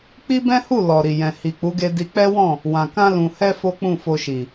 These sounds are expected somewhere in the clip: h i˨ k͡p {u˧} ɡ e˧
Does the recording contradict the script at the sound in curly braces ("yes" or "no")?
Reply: yes